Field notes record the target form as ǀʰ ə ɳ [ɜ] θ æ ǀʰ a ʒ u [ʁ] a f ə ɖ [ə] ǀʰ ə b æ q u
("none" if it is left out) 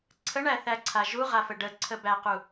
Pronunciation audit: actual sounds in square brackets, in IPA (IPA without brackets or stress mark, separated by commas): æ, ʁ, ə